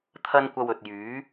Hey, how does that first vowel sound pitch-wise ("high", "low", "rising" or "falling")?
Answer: high